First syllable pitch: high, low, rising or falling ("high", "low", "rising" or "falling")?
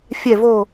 falling